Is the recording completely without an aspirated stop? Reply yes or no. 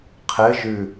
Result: no